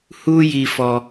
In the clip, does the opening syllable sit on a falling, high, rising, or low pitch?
high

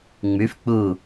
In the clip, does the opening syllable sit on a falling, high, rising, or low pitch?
rising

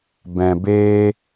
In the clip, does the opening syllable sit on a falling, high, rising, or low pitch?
low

